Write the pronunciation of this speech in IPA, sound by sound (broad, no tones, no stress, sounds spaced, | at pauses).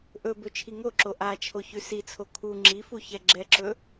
ʔ ɵ b ɵ t͡ʃʰ i ŋ o ǁ o ʔ a t͡ʃʰ o ç ʉ s i t͡sʰ o kʰ u ŋ͡ǁ i f u ç ɛ ɡ͡ǁ ɛ ǁ ɵ